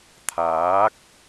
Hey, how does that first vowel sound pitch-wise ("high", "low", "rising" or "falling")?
rising